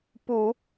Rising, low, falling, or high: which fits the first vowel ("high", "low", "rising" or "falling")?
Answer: low